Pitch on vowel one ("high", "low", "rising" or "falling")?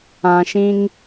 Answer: low